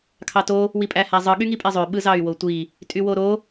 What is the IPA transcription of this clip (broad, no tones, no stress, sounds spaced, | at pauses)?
kʰ ɑ t o | w i pʼ æ h æ zˤ ɯ ɠ y ŋ i pʼ e zˤ ø ɓ ɯ z ɑ y̯ w o tʷ i | tʼ y w o ɾ o